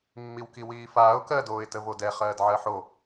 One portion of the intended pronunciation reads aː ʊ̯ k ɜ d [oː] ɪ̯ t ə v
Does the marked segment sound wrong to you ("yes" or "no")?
no